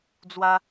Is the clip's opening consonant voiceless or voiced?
voiced